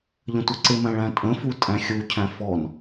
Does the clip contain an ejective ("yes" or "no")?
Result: yes